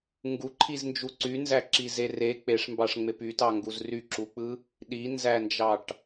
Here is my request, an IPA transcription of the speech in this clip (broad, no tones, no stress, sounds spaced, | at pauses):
ŋ ɡ u ǃʰ i z n d͡ʒ u ǀ y n z æ ǁ i z e r e k͡p e ʂ m b ɑ ʂ ŋ͡m e p y t ɑ ŋ ɡ u z r y ǁ u k͡p ɯ | ɗ i n z æ n d͡ʒ ɑ ʈ